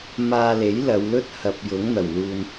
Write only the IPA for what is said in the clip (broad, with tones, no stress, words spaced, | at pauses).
maː˧le˨˥jlɐ˨˧wlɵ˥t̚ hɐ˨p̚jʊ˨˥ŋ n̪ɐ˨˩wluː˧n